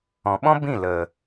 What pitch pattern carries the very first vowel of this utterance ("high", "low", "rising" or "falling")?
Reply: low